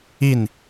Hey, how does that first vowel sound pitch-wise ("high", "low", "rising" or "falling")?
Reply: falling